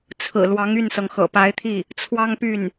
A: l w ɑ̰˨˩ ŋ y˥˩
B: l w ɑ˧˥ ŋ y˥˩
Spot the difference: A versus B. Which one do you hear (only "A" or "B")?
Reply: B